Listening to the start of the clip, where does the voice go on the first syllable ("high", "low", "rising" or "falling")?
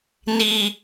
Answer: low